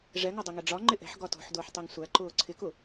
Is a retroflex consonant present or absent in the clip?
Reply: present